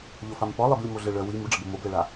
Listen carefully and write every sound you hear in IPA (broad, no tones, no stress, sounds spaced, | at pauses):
ʎ o f a m p ɔ lˠ e b lʲ ə m o ɮ ə ɭ œ w i m u ɖ͡ʐ ə b o m o b l ɛ ɭ a